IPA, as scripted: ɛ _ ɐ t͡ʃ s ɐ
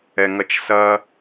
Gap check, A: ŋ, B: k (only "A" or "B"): A